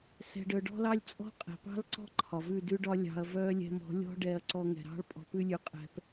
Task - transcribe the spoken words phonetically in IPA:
sɛ̤˧ɖœ˧ ɖɔ̤˦lɑ˦lʲ t͡sʼɔ̤˦qʼɛ̤˨pɑ̤˦l ǀɔ̤˦ ǃʰɒ˨ vʉ˦˨dʉ˦ɖɒ˦ lʲɑ̤˧ɐ̯vœ˦ lʲɛ̤˦m ɔ̤˨˦lʲɔ̤˦ ɖɛ˧ɐ̯ǀɔ˧ŋɛ̤˨ɾɑ̤˦ɭ pʼɔ̤˧pʉ˦lʲʉ˧ qʼɛ̤˧p

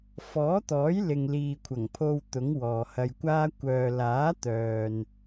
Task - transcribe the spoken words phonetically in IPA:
fɔː˨˥t̪ɔː˨˥jlɪ˨ŋ liː˨kʷʰɐ˨˩ŋpʰo˧w t̪ʊ˨˥ŋwɔː˨hɐ˧jkʷaː˥ kʷœː˨ laː˨˥t̪œː˨n

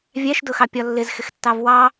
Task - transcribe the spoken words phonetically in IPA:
vʲæʃdʊxɑ pʲɒlːɪzxɪxtːɑv wɑ

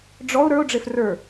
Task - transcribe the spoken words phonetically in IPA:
ɖ͡ʐɔʊ̯ ɾə˞ʊ̯ɖ͡ʐef rə˞

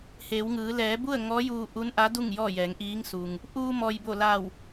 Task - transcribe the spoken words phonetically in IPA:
heː˩˧wŋɯː˩˧ lɛː˩˧bu˥˨ə̯ ŋɔː˧˥juː˧ ʔu˧˥nʔa˧˥du˥˨ŋ jɔː˥˨jɛː˩˧ŋʔiː˧˥ŋsu˩ŋ | ʔuː˧mɔː˩j bo˧˩la˧˩w

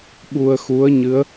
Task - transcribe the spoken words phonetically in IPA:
ɓu˧ə̯xu˧˥ə̯ɲɨ˧˥ə̯

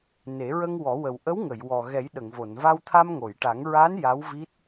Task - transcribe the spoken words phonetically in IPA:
ne˨˩˦ɹə˧ŋwɔ˨˩˦wə˨˩w ʔə˧˥wŋə˨˩˨jwɔ˨˩ ɣɛ˨˩˦jɗə˨˩˨ŋvo˨˩˨n va˧wt̪ʰa˧mŋo˨˩˨jʈa˨˩˦ŋ ɹa˧˥n ja˧˥w vi˦˥t̚

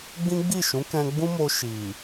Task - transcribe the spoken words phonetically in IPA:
ɡ͡bĩ˦ɡ͡bi˦˨ʃũ˨˦kɛ̃˧ ɡ͡bũ˦mo˧ ʃi˨

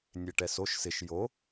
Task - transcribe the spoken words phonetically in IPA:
nʲeʈɛsoʃ sɪʃ jo

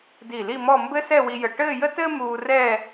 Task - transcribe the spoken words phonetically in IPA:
di˧˩li˥˧mɔ˥˧ mbɘ˥sɛ˥˧wi˧jə˧˩ ʈɘː˥˧jə˥tɘː˥ muː˧rɛː˥˧

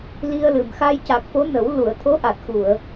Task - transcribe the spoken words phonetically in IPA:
li˧ə̯lɨ˨˩mxa˧j ca˨˩k̚fo˧˥nə˨˩˦w lu˨˩˨ə̯t̪ʰo˧˥ʔa˨˩t̚ xu˨˩˨ə̯

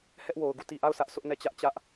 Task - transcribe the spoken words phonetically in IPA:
hɛ˦ʔwo˨ʊ̯ ɡu˦˨ti˨ʔa˦˨ʊ̯ sä˦ʔsʊ˦ʔnɛ˦˨t͡ɕä˦ʔ t͡ɕä˦ʔ

